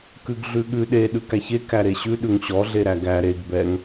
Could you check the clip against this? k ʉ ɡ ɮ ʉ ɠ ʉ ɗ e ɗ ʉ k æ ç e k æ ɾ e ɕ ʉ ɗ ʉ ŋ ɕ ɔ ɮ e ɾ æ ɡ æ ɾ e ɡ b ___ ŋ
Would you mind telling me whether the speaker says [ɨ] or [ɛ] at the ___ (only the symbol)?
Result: ɛ